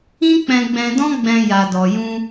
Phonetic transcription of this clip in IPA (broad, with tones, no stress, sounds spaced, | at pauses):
ĩ˦ k͡p ɛ̃˧ ɡ͡b ɛ̃˧ d ɔ̃˦ ɡ͡b ɛ̃˧ j a˨ d ɔ˨ j ũ˧